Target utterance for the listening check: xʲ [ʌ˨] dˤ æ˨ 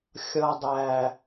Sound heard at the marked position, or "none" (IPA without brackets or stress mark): ʌ˨